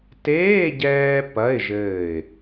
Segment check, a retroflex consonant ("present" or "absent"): absent